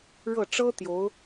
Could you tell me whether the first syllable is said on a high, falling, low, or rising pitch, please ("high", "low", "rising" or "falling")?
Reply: falling